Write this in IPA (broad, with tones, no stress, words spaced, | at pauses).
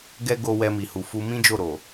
ɡɛ˦ ɡo˧ wɛ˧mi˨hu˨fu˧ mĩ˦d͡ʒo˦˨ɾo˨